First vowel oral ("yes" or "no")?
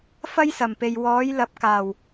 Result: yes